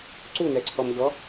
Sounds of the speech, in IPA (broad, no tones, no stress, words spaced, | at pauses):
ǀunɛǀʰɔmʎɔ